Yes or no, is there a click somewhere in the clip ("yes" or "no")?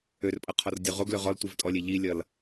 no